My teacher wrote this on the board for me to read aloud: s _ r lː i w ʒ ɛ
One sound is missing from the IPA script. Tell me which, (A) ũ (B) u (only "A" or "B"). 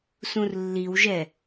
A